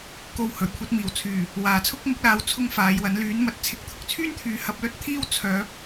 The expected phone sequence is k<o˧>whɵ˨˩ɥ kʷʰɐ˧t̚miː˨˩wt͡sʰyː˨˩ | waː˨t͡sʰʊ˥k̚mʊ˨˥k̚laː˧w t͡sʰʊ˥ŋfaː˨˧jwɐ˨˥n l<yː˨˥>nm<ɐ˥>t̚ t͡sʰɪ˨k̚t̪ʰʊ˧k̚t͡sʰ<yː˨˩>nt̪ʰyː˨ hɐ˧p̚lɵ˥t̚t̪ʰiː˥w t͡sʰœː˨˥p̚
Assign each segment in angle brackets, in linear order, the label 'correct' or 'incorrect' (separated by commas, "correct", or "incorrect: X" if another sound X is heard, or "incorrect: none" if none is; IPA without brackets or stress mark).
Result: correct, correct, incorrect: ɐ˨˥, incorrect: yː˥